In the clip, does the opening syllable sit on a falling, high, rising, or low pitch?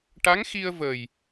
rising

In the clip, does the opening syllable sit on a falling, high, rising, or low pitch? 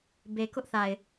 low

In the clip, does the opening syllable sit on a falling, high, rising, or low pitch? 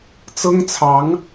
high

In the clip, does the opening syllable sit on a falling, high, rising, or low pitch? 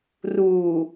low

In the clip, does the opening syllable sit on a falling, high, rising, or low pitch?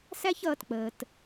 high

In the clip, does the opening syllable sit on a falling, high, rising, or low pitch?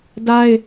high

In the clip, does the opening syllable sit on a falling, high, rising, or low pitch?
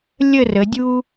falling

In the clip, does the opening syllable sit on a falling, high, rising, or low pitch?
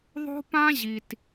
high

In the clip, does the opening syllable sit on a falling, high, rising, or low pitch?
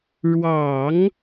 low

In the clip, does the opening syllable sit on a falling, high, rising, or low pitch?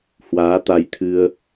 rising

